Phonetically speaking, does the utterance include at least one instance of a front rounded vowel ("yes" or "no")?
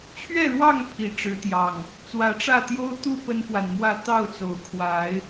no